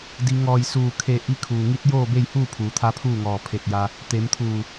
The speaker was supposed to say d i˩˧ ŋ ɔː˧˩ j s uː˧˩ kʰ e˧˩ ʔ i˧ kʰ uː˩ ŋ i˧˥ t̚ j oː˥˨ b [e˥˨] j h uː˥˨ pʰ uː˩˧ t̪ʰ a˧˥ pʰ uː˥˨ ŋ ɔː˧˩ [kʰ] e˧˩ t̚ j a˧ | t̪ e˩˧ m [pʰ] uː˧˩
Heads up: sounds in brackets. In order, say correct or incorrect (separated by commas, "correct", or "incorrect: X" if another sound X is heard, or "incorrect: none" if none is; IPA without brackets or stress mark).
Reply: correct, incorrect: pʰ, incorrect: t̪ʰ